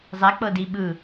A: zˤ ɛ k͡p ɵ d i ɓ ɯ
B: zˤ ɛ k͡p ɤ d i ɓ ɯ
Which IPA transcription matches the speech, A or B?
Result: B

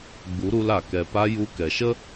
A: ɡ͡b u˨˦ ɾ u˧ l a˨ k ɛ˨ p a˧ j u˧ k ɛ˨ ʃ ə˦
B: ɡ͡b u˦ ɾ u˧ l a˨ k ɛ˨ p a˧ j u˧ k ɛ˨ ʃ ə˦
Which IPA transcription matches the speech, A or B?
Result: A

